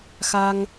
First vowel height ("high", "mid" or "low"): low